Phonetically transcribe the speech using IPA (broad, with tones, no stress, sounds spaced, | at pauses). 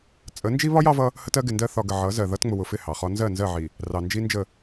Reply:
t͡sʼ ə˨˦ n d͡ʒ i˦ β ɒ˦ j ɑ˦ v ʌ˦ | h ə˦ t ɜ˨˦ ɡ ɪ˨ n d ɜ˦ θ ɒ˨ ɡ ə˨ ʕ ʌ˨˦ z ɜ˨ ð ʌ˦ t ŋ͡m ʊ˨ w ʊ˨ f ɪ˦˨ h ɑ˨ χ ɒ˦ n z ɜ˦˨ n z ɜ˦˨ ʕ i˨ | r ɑ˨ n d͡ʒ i˦ n d͡ʒ ə˦˨